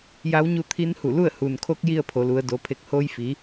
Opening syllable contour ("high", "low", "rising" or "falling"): rising